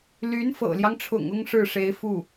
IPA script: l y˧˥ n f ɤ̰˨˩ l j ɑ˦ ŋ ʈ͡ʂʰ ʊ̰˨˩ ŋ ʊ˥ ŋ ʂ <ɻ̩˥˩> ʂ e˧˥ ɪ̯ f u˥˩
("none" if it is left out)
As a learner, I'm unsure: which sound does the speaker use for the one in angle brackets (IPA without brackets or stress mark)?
ɻ̩˥˩